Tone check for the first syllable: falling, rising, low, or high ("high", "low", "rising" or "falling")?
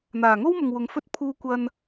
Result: low